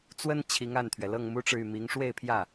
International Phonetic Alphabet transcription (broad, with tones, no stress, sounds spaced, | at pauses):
t͡s w ə˥ n t͡ɕʰ i˧˥ ŋ a˥˩ n t̪ʰ ɥ ɛ˩ l ɤ˥˩ ŋ m u˥ ʈ͡ʂ ɻ̩˨ y˥˩ m i˧˥ ŋ ʂ w e˥˧ ɪ̯ pʰ j ä˥˩